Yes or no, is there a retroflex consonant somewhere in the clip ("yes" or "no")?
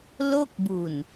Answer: no